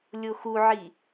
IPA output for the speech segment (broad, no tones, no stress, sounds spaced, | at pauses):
lʲ o x u ʕ i